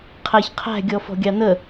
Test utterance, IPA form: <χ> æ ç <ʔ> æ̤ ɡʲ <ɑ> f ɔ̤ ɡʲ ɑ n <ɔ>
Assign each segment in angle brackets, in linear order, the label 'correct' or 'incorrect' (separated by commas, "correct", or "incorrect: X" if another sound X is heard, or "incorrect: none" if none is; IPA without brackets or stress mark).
incorrect: qʰ, incorrect: qʰ, incorrect: ɔ, incorrect: ə